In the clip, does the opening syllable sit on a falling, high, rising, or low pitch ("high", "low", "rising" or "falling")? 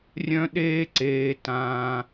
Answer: high